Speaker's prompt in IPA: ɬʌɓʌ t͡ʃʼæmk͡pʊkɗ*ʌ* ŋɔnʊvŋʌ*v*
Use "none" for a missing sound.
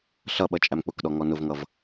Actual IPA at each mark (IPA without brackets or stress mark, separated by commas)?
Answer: ɔ, v